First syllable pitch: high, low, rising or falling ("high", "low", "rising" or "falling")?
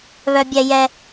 high